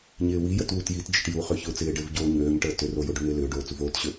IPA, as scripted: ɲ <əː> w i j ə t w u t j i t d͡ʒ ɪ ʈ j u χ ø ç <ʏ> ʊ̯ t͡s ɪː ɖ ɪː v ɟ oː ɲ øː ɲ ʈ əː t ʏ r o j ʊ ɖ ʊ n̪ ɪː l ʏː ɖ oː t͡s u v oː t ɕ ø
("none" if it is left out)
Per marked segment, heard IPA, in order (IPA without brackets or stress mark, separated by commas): ɪː, ʏ